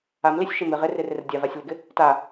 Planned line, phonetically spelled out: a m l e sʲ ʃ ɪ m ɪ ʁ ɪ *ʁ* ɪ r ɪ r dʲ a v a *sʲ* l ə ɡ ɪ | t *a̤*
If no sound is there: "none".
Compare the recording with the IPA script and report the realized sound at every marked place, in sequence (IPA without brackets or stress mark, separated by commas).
r, sʲ, a